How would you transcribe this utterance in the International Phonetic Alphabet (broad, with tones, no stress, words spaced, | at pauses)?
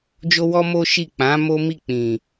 d͡ʒo˦wɔ˦ mo˦ ʃi˦˨ k͡pã˨˦ mo˦mi˦˨ k͡pĩ˨